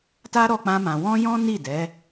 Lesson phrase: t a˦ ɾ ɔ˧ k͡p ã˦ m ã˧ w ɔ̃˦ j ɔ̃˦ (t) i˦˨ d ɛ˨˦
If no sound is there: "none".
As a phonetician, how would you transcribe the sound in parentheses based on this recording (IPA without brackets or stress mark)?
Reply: n